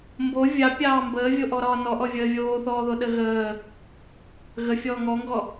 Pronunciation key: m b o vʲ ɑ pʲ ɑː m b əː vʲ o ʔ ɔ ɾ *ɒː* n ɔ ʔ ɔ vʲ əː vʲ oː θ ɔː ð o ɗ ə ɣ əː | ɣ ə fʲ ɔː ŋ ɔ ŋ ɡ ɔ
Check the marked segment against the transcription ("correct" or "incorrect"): correct